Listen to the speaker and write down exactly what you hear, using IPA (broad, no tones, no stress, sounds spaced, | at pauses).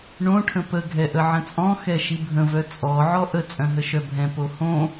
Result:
ɳ õ ʈʰ ə̃ p ə ɡʱ ɛ ʔ ə ʕ ə̃ t͡sʼ ɔ̃ x ɛ ʃ i bʱ ə̃ v œ t͡sʼ ɔ ʕ ɔ ʔ ə t͡sʼ œ̃ ɦ ə ʃ œ bʱ ɛ̃ p o h õ